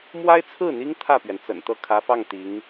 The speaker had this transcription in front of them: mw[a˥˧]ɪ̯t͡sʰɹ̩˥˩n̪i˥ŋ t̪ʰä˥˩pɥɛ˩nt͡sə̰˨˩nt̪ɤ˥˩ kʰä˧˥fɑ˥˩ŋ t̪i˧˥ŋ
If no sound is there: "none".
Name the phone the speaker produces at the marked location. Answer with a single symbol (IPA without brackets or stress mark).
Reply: a˥